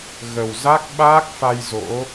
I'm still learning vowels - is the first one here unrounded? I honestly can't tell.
yes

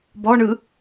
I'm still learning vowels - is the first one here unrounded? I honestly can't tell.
no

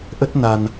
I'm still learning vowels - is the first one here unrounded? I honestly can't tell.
yes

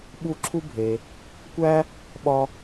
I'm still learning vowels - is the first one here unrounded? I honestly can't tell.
no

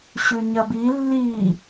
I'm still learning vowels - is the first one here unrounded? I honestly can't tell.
no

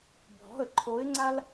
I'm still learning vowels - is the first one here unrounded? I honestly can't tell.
no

